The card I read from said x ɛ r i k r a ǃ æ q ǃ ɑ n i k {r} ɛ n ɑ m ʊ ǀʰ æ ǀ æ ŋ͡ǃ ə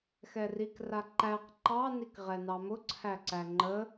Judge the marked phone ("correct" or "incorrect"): incorrect